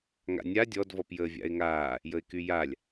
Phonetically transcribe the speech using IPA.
ŋ a̰ nʲ a dʲ ɔ d v ɔ p j əː vʲ a̰ ɪ̯ ŋ aː | j ə ɪ̯ k y j a lʲ

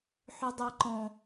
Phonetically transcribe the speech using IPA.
ħ ʏ dˤ ɛ ǃ ɔ̃

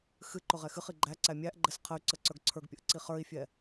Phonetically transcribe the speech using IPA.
x ɨ ǃ ʊ ʁ ɛ x ɨ χ i ɡ͡ǃ æ ǀ æ mʲ æ ʔ ɡ͡ǃ ɛ s qʰ ə y̯ ǀ ə ǀ ə˞ ɡ ǀʰ ə˞ ɡ pʲ ə ʔ ǀ i χ ə˞ i̯ fʲ ɛ

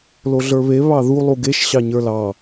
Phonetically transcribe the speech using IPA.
l o ɮ ə˞ β e β ɑ ð u lˠ u ɡ e ʃ ɕ ɑ ɲ ə˞ l ɑ

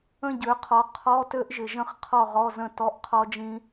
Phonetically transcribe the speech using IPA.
ə̃˥˨ ɟ ø˩˥ qʰ ɔ˩˥ qʰ ɔ˧˥˧ t ø˦˥ ʔ ʒ ɪ˨ ʒ ə̃˥˨ χ qʰ ɔ˥˨ ʁ ɔ˧˥˧ z ə̃˥˨ t ɔ˧˥˧ ʔ qʰ ɔ˦˥ d͡ʒ ĩ˦˥

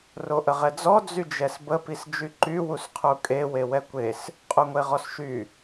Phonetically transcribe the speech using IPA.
r o ʔ ə ʁ ɛ d͡z ɔ d͡z y d͡ʒ ɛ s b ə p i s d͡ʒ y ǃ y w u s qʰ u kʼ e w e w ɛ kʷ e s | qʼ u ŋʷ e ʁ ɔ s ʃ y

